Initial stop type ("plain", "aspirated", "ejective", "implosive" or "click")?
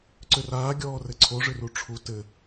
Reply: click